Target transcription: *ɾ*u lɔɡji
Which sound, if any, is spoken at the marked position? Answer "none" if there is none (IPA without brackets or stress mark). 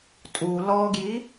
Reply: tʼ